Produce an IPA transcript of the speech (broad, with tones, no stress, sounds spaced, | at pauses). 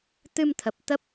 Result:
t̪ ɨ˧ m t̪ʰ ə˨˩ p̚ t̪ ə˦˥ p̚